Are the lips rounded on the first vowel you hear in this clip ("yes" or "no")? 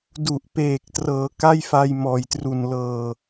yes